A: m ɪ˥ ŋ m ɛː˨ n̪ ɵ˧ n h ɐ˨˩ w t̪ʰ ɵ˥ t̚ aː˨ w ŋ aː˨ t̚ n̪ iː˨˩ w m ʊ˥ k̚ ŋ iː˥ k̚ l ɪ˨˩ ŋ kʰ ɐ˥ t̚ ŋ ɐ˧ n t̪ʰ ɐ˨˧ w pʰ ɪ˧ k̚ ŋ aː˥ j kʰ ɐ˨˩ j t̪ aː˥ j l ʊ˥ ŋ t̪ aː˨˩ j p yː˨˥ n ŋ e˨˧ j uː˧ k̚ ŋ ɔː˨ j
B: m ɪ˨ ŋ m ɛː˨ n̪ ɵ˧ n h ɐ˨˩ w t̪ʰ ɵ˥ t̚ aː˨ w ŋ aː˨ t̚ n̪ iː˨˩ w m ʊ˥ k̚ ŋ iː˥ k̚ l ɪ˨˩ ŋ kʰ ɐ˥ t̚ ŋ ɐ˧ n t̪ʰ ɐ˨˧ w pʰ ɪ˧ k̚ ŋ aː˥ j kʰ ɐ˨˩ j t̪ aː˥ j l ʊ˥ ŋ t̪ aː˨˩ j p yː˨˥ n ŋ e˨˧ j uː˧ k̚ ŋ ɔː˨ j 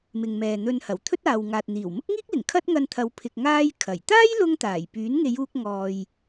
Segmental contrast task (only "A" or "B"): B